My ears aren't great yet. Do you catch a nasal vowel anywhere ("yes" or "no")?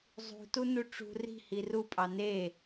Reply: no